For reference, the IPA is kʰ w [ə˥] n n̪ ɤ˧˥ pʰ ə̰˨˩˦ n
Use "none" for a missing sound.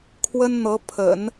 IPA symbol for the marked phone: ə˥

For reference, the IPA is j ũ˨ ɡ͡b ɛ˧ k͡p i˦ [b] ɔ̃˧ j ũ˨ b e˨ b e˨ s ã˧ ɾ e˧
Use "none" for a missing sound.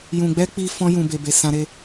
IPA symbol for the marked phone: f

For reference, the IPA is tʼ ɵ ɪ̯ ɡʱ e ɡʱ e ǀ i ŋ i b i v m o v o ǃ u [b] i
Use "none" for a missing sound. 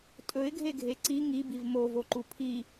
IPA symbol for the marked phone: pʰ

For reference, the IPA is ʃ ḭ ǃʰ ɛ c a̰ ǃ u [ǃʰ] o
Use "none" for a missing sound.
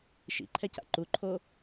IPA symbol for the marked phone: ǃʰ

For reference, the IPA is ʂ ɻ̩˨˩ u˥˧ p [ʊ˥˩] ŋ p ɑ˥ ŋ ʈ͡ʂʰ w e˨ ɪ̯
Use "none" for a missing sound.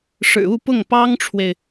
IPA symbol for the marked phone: ʊ˥˩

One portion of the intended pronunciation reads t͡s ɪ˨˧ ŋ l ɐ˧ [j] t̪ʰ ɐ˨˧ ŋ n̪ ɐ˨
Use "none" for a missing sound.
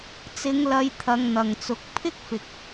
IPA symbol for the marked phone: j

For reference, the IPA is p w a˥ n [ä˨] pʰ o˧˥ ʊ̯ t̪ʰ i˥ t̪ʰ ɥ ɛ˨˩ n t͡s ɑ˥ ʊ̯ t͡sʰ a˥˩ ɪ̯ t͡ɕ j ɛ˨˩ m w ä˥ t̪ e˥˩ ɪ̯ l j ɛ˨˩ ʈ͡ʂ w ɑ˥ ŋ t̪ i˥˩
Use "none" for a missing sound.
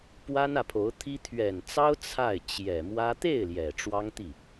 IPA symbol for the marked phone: ä˨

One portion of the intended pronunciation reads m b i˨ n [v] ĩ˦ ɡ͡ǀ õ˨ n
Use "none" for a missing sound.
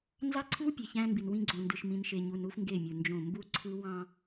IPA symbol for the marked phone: w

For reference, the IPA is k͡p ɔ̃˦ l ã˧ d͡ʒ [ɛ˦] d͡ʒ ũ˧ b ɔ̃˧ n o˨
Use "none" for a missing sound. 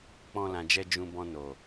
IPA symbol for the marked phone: ɛ˦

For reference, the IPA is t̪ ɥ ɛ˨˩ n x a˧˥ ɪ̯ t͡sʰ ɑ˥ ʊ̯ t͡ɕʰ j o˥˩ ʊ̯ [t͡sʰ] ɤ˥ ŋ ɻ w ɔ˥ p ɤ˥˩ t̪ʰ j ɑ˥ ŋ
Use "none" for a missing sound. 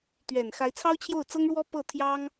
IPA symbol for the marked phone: t͡s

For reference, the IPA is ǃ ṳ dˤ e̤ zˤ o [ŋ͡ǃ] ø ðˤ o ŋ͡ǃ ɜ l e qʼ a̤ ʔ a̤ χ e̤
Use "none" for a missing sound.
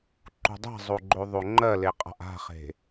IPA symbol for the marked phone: ɡ͡ǃ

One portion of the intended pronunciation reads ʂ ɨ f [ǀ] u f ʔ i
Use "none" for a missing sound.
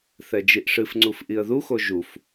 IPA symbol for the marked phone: ŋ͡ǀ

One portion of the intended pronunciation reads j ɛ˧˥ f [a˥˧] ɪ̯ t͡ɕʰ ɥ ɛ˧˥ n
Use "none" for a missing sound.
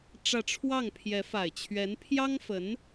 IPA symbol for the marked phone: a˨˩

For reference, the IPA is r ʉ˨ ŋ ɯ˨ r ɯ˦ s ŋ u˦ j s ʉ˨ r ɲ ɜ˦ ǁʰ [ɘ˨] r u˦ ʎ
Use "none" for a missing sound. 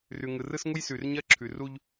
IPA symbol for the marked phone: ʉ˨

